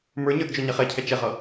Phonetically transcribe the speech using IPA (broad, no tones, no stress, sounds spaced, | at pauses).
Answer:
m ə˞ ɲ ə˞ d d͡ʒ ɔ ɲ ɛ χ ɛ cʰ ɛ t͡ʃ ɛ ʁ ʌ